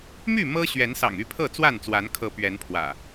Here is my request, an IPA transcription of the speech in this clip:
my˥˨ mɤ˦ ɕɥɛ˨˦nsɑ̰˨˩ŋ y˥˨pʰɤ˥˨t͡swa˥˨nt͡swa˨˦n kʰɤ˨˦ pɥɛ˨˦npʰwä̰˨˩

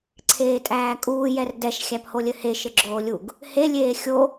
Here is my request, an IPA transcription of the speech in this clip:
ǀʰeːtʼæːkʼuː jɛrdɛʃ xʲæpholʲɘhe ʃɘɡ͡ǁoːlʲuɡ | he lʲeːxʲo

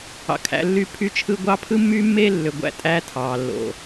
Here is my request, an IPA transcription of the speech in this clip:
ɑ̰˨kʰæ̰˨˦lːyː˦ pʰy˦t͡ʃʰɯ˦ ɡʷɑ˦ pʰɯ˦mːyː˦mːeː˦lːø˨ ɡʷæ̰˦˨tʼæː˦ tʰɑː˨lːo̰˨

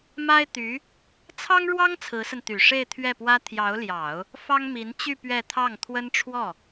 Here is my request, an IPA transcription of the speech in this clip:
ma˥ɪ̯t̪y˧˥ | t͡sʰɑ˥ŋɻwɑ˥ŋ t͡sʰɹ̩˧˥sə˧nt̪y˨˩ ʂe˥˧ɪ̯t̪ʰɥɛ˥˩pwä˥ t̪ʰjɑ˧˥ʊ̯ljɑ˨˩˦ʊ̯ | fɑ˥ŋmi˧˥nt͡ɕy˥˧ pɥɛ˥˧ t̪ʰɑ˥˩ŋ t̪ʰwə˥nʈ͡ʂʰwɔ˥˩

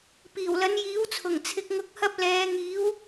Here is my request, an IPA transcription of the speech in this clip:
piː˨˩wlɐ˨˥njiː˨˥wt͡sʰʊ˨˩ŋ t͡sʰɪ˧k̚ŋʊ˧k̚hɐ˥p̚ lɛː˨˧ ŋiː˨˥w

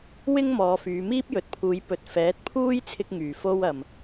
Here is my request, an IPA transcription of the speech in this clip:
wɪ˥ŋ mɔː˨˧fyː˨˧ miː˥p̚jɵ˨t̚pʰuː˨˧j pɵ˨t̚ fɛː˨˥t̚pʰuː˥j t͡sʰɪ˥k̚ŋyː˨˩fo˥wɐ˨m

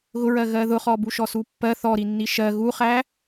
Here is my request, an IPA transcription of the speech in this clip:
ɣʊɹɜ ɣɜðʊχɔ buʃɔsupːɜ θɔɾi nːiʃɜ ɣuχæ

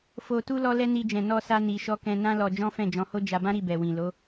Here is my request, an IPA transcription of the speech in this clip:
fo˧tu˦ lɔ˦lɛ˦ni˧ d͡ʒɛ̃˨nɔ˧sa˧ ni˨ʃɔ˧ kɛ̃˧ nã˦lɔ˧ d͡ʒɔ̃˦fɛ̃˦˨d͡ʒɔ̃˨˦ho˦ d͡ʒa˧bã˦ ɾi˦˨bɛ˨wĩ˨ lo˨˦

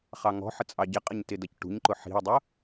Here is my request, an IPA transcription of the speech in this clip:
χɑŋɔ̤ħə t͡sʼɑɟɪqʼəɲ tɪdʌcʈṳɲǃʊ ħi̤ə̯dˤʊ

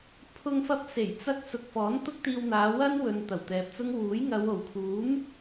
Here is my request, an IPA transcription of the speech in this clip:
pʰʊ˧ŋfɐ˧p̚se˨˩j t͡sɐ˧k̚sʊ˨k̚ fɔː˨˥nt̪ʊ˥k̚t̪iː˧wn̪aː˨˧ wɐ˥nwɵ˨n t̪ɐ˨˩wt̪ɛː˨p̚t͡sʊ˥ŋ wuː˨˥j ŋɐ˨˧w o˨˩wkʰuː˨˥m

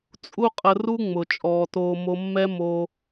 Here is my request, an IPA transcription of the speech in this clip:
t͡sʼu˦qʼə˧ru˦ŋ͡mʊ˨ t͡ʃʼɔː˨toː˧mo˧ mːɛ˦moː˧

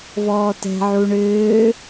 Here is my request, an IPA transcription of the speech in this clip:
vɔːtɛ̤ ʕuɳʏː

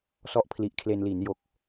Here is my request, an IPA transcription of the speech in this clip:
sɔ˥˩ʔpʰli˨˩ʔ kʰle˧n li˩˦njo˨˩k̚

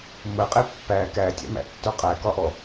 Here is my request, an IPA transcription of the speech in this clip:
məqʼe pːæ kætʲæ̰mæ̰tːo qʼækɒʔɔ

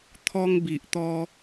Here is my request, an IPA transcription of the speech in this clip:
t̪ʰɔ˧ŋbi˨ʔt̪ɔ˧

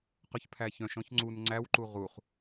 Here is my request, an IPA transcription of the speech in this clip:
qœçpʰæçœ̃ʃ ɔ̃çŋ͡ǀun ŋ͡ǀæwǃu ʁuχ

